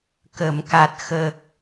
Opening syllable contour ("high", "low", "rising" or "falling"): low